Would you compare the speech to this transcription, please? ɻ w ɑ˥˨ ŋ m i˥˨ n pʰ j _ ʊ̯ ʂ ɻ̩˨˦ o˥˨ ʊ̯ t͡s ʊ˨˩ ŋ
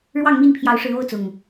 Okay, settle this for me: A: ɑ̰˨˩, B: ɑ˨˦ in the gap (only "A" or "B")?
B